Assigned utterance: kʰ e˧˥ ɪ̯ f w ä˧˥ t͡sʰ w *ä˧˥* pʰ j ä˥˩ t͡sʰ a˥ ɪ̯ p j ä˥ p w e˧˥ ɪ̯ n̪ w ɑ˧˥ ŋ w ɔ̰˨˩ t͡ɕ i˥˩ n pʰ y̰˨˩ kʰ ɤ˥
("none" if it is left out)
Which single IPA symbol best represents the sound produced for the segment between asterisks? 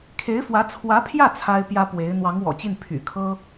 ä˧˥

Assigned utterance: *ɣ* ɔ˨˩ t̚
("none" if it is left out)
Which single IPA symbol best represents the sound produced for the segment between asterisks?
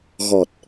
ɣ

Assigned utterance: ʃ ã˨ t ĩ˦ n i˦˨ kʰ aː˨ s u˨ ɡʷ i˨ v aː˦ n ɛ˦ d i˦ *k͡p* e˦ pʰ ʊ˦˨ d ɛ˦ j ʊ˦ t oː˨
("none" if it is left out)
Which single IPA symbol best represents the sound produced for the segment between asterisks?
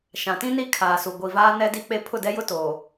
k͡p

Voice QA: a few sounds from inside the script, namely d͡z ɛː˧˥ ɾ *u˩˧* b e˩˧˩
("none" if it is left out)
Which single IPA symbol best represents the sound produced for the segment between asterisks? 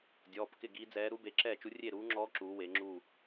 u˧˥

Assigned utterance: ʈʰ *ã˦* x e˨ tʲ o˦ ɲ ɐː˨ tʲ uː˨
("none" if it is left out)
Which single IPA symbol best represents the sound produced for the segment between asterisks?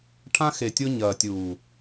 ã˦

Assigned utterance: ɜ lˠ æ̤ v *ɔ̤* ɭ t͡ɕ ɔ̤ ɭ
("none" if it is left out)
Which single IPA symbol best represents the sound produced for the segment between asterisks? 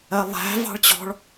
ɑ̤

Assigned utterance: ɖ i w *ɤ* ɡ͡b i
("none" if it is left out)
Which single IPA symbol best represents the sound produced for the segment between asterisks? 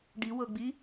ɤ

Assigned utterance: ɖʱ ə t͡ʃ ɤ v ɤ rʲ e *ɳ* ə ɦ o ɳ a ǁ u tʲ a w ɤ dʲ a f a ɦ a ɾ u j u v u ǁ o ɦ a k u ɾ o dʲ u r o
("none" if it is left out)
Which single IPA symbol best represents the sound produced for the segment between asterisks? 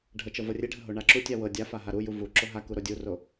ɖʱ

